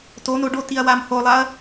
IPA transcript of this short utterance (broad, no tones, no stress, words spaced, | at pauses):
tono ɖotiɐ̯ wamholˠaɐ̯